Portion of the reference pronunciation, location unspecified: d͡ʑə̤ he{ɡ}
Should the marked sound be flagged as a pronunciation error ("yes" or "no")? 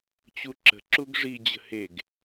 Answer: no